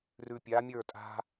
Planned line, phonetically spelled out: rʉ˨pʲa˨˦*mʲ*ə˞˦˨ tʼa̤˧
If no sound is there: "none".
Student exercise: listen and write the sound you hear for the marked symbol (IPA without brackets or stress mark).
mʲ